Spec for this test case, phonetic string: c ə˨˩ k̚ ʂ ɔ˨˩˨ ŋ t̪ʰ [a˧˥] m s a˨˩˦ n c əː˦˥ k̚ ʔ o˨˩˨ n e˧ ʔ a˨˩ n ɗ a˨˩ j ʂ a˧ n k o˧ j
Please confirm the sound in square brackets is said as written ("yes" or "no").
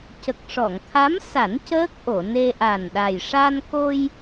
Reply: yes